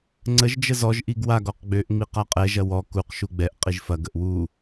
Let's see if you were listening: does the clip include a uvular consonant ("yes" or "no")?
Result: yes